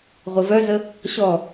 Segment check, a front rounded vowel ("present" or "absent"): present